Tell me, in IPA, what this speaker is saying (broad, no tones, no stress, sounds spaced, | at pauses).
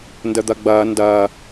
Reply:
n d ə d̪ ɐ ɡ͡b ɐː n d ɐː